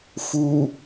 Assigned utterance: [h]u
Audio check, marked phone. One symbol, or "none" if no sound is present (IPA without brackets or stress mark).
f